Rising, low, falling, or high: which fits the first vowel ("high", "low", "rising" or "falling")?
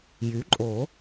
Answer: rising